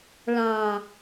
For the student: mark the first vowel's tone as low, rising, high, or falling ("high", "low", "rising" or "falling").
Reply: low